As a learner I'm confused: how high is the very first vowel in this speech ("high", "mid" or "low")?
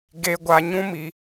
mid